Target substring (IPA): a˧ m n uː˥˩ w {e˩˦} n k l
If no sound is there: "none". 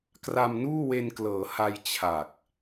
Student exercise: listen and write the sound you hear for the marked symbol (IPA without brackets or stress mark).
e˧